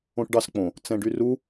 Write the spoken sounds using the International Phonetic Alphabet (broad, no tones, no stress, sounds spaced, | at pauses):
õ ʈ ɖ ɑ s k͡p õ | t͡s ɛ̃ ɖ y r u